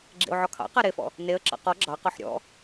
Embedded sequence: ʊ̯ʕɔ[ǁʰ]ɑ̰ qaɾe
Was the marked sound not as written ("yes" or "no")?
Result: yes